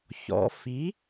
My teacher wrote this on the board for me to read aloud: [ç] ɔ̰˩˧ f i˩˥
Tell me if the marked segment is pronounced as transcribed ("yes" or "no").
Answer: yes